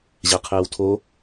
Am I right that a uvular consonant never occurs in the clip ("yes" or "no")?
no